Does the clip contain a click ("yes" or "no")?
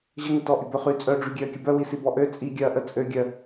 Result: no